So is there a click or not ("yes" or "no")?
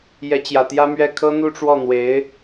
no